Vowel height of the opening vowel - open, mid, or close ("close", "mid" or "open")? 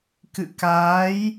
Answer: close